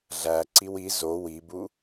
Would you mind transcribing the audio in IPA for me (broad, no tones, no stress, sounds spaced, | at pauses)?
ɮ æ ǀ i w i z o w i b u